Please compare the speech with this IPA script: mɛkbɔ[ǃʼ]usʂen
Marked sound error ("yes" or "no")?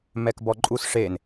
no